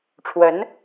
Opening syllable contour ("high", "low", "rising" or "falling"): rising